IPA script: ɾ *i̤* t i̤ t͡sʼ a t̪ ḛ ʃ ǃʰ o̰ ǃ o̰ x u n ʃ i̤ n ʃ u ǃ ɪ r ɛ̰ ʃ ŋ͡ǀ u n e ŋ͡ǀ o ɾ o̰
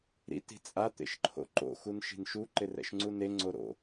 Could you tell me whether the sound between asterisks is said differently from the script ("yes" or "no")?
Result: yes